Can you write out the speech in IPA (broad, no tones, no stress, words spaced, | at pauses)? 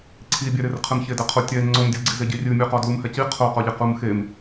ǀʰibʲɛɾer qʰɨmçedɛqʰo tʲɛ ŋ͡ǀomdʲuɡ͡ǀize ɟirʲɨmʲuqɔ dlumhɛci qʰoqɔʎe qumxem